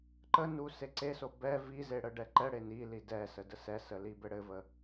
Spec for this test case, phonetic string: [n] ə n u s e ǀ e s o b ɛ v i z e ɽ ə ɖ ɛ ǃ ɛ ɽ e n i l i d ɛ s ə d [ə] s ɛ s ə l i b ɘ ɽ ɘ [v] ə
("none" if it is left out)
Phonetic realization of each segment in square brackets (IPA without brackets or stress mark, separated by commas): ǃ, ə, v